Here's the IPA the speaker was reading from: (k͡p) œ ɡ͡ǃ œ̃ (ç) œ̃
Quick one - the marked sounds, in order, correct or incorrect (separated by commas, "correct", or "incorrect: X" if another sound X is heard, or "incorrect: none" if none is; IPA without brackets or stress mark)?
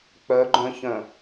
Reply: correct, correct